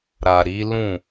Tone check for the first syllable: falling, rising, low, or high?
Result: low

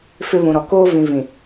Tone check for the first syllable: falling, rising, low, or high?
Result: high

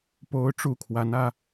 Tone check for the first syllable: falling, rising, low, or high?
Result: high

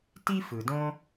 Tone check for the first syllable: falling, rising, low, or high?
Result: high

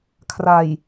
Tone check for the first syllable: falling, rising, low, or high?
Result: low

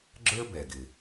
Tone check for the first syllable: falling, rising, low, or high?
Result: high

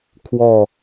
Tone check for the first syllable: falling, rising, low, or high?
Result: falling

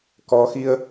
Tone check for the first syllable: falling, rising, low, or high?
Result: rising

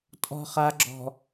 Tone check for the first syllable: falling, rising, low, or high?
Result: low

